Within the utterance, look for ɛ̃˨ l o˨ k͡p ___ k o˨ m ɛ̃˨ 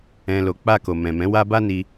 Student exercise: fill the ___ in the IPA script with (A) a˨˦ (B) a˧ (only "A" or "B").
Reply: B